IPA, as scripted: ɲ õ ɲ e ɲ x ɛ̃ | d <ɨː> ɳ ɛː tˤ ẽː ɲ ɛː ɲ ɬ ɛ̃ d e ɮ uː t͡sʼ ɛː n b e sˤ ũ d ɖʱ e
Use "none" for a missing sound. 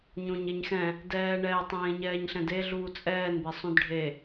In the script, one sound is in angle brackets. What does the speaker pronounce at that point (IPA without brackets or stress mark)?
ɛː